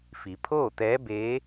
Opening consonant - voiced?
no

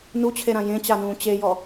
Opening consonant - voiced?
yes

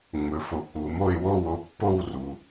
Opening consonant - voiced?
yes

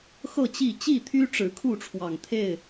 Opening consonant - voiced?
no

